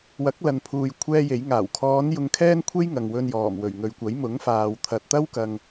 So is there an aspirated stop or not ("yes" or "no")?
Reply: yes